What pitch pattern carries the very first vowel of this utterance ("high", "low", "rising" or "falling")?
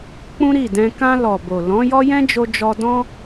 high